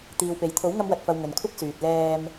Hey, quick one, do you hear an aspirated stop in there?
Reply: yes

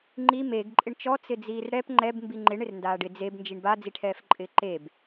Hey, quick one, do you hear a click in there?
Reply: yes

